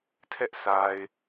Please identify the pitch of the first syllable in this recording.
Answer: high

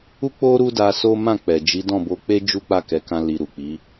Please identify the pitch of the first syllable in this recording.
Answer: high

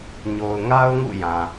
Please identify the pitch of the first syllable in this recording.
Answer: low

